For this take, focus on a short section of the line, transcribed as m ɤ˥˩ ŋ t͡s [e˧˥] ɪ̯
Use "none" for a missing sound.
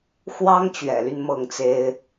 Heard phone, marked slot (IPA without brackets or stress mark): e˥